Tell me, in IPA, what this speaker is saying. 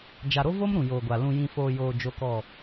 d͡ʒ a˨ ɾ o˦ v o˦ m ɾ ũ˨ j oː˨ ɡʷ a˨ l ũ˨ j ĩ˨ f oː˨ j oː˨ d͡ʒ o˦ k ɔ˦˨

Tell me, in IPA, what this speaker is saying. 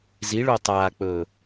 z i ɭ o tˤ aː k͡p ɵː

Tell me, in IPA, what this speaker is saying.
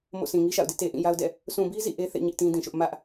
m o̰˦˨ s ĩ˨ ŋ i˦ ʃ a̰˦˨ ʊ̯ d ɪ˦ ʔ t e˨ ʔ ĩ˦˨ j a˦ ʊ̯ d ɛ̰˦˨ | s ũ˨ b i˦ z ḭ˦˨ ʔ e˦ θ ḛ˦˨ ɲ ɪ˦ ʔ t ĩ˦ d ĩ˨ ʃ ʊ˦ ʔ m ä˦ ʔ

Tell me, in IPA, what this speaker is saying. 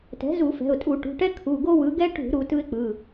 t ɛ̤˩˥ z u˧˩˧ f ɛ̤˩˧˩ ʊ̯ tʼ u˧˩˧ ʈ ṳ˩˧˩ ʈ ɛ˦ kʰ u˩˧˩ ɡ o˦ w ɯ˩˥ ɡ ɛ˦ ʈ ṳ˧˩˧ ɾ u˩˧ t ɯ˦ ɪ̯ k͡p ɯ˩˧˩

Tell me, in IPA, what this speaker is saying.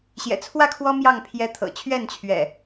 ɕ j ɛ̰˨˩ t͡sʰ w ä˥˨ kʰ w ɔ˦ m j ɑ˥˨ ŋ pʰ j ɛ˦ t̪ʰ ɤ̰˨˩ t͡ɕʰ ɥ ɛ˥˨ n t͡ɕʰ ɥ ɛ̰˨˩

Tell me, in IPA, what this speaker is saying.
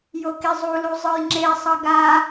j o k i zˤ u l u zˤ ɯ j ŋ͡ǁ e sˤ ʌ ɡ a

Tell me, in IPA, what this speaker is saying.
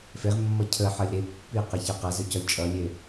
f e ʁ mː ʌ cʰ ə ħ ʌ lʲ ɾ e pː i q e ç a q a z ɵ c ɔ lʲ t͡ʃʼ ʌ lʲ e

